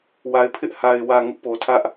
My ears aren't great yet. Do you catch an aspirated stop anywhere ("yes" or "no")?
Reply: yes